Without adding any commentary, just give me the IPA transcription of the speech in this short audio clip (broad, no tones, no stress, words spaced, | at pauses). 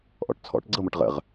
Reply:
ʔɔ̰ʈt͡sʰɔ̰ʈ ɡ͡ǀɤmɤʈ ʁə̰ʁ